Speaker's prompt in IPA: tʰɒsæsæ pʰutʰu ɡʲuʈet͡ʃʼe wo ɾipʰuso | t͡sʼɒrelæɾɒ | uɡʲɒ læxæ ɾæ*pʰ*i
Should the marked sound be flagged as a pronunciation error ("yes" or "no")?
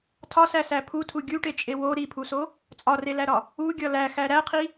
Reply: yes